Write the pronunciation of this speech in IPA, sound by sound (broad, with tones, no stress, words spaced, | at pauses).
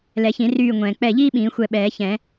lɛ˨˩˦çĩ˨˩˦ ryː˧˩ ŋʷɛ̃ː˩k͡pɛ˧˩ʎiː˥ ɓĩː˨˩˦xʷɛ˧˩ ɓɛː˨˩˦çɛ̃˨˩˦